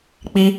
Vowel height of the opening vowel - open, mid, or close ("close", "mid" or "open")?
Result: close